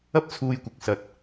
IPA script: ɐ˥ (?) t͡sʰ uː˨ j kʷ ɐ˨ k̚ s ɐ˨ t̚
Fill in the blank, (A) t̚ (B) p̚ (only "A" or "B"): B